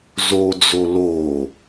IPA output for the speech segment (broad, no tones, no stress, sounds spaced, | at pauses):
z o d͡z o l o